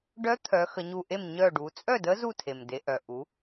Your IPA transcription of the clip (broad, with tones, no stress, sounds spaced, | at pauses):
ɖ œ˧˥ t̪ʰ œ˩˧ x ə˩˧ ɲ u˧˩ ʔ e˥˩ m ɲ œ˧˩ ɖ u˩˧ t͡sʼ œ˥˩ d ə˧˥ z u˥˩ tʰ e˩ m d e˩˧ ʔ œ˩ ʔ u˩˧